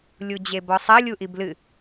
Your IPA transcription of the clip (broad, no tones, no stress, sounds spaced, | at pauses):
lʲ u d͡ʑ e b ɔ sˤ ɐ lʲ u ʔ i b l ɨ